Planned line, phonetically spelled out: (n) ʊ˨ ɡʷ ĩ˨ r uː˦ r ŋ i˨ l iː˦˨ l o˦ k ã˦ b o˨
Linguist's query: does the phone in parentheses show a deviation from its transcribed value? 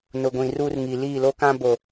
no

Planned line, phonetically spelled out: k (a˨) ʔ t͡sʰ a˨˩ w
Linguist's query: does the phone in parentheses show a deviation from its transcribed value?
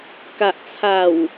no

